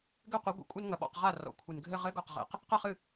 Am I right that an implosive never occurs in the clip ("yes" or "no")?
no